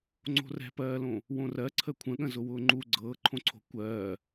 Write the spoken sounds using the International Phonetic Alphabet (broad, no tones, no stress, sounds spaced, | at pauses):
ŋ͡ǀ o̤ r ɛ̤ p ɜː l õ | w õ r ɜ ǀʰ ə kʷʰ ə̃ ɠ ə̃ z ʊ w ʊː ŋ͡ǃ u ɡ͡ǀ ɤː ǃʰ õ ǀʰ o̤ kʷ ɜː